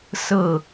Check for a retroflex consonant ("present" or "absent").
absent